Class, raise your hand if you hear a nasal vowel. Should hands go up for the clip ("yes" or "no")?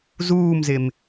no